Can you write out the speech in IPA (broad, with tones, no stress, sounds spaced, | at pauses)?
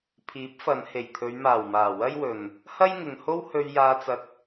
pʰ iː˨˥ p̚ f ɐ˨˧ n h e˨˩ j t̪ʰ ɵ˨˧ ɥ m aː˨˩ w m aː˨˩ w ɐ˥ j w ɵ˨ n | h ɐ˥ j ŋ ɪ˨ ŋ h o˥ w h ɵ˧ ɥ j aː˧ t͡s ɐ˧ k̚